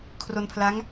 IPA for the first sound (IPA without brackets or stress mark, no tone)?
kʰ